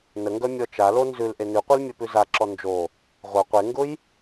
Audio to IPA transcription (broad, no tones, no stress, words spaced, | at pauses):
nəŋɡœ mʲɔt͡ʃalo nzʉlʔe nʉqʷil mʲœpʉzaǁɔ nd͡ʒo | ʁʷœ qʷeŋɡʊj